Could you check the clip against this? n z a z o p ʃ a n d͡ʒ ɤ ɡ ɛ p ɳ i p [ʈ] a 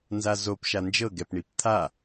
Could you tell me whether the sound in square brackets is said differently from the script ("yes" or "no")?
yes